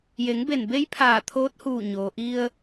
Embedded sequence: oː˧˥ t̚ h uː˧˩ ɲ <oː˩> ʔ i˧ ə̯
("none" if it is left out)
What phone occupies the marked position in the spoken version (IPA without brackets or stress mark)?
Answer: oː˩